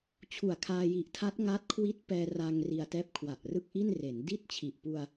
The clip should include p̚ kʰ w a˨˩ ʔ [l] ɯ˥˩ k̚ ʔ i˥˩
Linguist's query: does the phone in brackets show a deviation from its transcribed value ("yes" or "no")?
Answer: yes